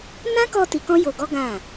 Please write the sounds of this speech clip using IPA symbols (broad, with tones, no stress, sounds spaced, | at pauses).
n ã˦ k ɔ˧ t i˧ k ɔ̃˦ j o˧ ɡ ɔ˦ ɡ ã˦˨